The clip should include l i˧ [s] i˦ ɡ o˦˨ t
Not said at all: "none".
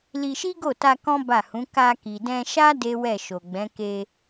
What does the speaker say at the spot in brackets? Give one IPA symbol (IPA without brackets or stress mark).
ʃ